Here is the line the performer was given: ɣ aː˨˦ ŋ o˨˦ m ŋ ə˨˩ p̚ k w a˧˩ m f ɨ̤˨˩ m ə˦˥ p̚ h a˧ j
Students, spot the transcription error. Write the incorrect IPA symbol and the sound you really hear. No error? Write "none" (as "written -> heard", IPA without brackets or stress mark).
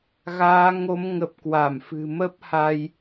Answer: none